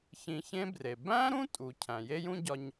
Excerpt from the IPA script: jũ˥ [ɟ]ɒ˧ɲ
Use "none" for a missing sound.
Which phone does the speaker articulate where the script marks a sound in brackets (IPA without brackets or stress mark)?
ɟ